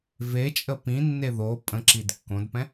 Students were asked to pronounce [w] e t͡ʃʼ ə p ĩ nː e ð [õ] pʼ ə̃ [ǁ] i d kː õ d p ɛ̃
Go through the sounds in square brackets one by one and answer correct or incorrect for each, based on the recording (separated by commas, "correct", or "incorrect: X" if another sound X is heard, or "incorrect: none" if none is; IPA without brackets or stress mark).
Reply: incorrect: v, incorrect: o, correct